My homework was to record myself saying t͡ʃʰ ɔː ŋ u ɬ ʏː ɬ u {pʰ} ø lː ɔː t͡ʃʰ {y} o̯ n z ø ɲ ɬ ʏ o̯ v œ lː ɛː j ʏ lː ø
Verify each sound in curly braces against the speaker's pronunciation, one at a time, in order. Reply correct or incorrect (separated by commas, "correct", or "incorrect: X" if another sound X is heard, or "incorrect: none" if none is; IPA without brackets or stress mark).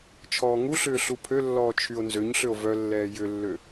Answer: correct, correct